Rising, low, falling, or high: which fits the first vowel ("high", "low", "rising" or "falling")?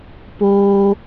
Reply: high